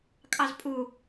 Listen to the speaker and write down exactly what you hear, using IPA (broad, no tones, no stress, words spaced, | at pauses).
kʼɑzpʼu